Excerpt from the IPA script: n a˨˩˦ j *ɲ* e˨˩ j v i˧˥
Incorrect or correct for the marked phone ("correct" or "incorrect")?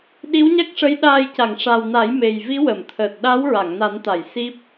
incorrect